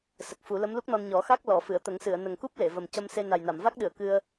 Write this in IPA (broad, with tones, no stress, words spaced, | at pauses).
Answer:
sə˨˩k̚fu˨˩˦ lə˧˥mlu˦˥k̚nɔ˧n ɲɔ˨˩˦xa˦˥k̚ lɔ˨˩˨ fɨ˨˩˨ə̯t̪ə˨˩˦ŋsɨ˨˩˨ə̯ nə˨˩ŋku˦˥p̚ le˨˩˨ və˨˩m cə˧mse˧ na˨˩jna˨˩˨m va˦˥k̚ɗɨ˨˩˨ə̯ kɨ˧ə̯